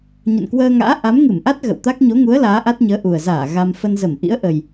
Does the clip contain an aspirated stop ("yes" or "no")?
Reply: no